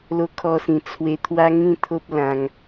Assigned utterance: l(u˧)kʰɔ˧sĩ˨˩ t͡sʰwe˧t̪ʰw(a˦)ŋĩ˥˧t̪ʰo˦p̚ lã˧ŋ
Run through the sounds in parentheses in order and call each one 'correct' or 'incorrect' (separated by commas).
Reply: incorrect, correct